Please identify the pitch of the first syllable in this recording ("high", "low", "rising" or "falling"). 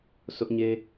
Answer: high